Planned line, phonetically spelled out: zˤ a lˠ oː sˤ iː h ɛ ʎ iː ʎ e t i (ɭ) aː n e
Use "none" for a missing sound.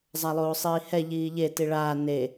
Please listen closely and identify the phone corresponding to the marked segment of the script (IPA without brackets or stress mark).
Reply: ɭ